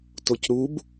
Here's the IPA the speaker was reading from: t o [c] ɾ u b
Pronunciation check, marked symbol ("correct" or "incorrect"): correct